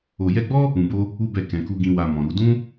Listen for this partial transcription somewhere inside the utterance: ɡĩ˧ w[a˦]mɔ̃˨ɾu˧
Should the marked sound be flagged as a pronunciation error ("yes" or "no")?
yes